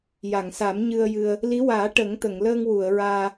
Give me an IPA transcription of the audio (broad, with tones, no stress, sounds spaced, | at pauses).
j a˨˩˨ ŋ s a˨˩˦ m ɲ ɨ˧ ə̯ j ɨ˧ ə̯ | l i˧˥ w aː˨˩˦ ʈ ə˨˩˦ ŋ t̪ ə˨˩˨ ŋ l əː˧ ŋ w u˨˩˨ ə̯ ɹ aː˧